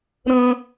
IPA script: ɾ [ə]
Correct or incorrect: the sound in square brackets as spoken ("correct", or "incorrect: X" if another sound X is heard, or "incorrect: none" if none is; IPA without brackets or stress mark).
incorrect: ə̃